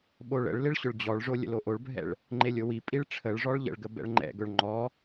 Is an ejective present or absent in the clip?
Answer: present